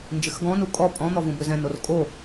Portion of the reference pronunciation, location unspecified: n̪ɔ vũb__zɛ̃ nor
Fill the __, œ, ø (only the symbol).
ø